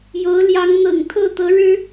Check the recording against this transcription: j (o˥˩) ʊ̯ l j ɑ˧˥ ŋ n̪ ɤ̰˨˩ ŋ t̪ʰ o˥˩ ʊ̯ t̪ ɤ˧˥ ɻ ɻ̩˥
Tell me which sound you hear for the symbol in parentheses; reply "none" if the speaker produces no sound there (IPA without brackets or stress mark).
o˧˥